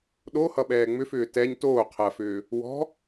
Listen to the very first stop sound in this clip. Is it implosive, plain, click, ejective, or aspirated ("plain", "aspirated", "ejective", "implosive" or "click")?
implosive